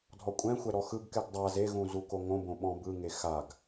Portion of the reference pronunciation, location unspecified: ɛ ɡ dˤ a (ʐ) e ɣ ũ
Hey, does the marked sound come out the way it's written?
no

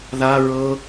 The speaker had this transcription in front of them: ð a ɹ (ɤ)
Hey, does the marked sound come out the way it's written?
yes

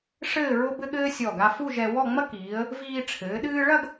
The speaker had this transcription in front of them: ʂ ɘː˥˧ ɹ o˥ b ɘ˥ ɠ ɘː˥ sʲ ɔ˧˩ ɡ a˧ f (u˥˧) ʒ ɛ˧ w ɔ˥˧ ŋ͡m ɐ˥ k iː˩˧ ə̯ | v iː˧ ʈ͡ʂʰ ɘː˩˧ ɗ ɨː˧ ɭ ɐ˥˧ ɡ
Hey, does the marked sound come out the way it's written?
yes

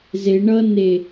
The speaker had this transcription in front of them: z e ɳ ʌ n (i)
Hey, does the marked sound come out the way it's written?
no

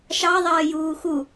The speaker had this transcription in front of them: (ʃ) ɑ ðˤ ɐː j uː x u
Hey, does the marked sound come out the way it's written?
yes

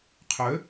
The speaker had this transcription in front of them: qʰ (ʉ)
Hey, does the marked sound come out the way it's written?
no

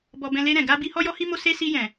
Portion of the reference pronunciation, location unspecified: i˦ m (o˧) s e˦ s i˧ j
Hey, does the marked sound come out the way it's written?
no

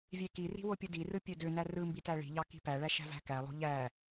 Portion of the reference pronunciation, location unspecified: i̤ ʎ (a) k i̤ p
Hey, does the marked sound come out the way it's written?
no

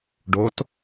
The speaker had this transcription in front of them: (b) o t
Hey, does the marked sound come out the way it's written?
no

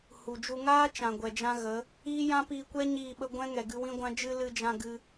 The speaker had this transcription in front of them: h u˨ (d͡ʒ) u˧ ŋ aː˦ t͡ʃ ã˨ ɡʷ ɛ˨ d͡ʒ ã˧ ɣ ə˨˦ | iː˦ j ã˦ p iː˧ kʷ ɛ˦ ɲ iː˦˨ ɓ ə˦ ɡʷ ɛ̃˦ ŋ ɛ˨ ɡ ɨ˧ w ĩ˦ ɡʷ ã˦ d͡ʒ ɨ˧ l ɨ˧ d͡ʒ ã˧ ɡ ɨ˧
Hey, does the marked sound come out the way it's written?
yes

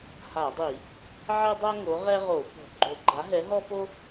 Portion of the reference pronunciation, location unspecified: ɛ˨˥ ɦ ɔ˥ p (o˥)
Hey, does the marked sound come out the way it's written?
yes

